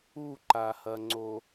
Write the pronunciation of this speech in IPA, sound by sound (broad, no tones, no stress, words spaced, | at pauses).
uǃahɐŋ͡ǀo